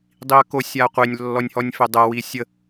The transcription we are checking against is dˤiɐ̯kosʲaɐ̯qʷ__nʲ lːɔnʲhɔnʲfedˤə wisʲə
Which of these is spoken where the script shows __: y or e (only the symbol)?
e